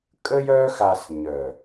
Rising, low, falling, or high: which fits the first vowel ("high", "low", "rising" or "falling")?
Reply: high